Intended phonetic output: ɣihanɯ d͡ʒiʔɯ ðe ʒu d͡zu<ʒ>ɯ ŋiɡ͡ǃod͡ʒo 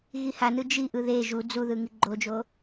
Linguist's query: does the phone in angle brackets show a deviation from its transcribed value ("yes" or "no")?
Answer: yes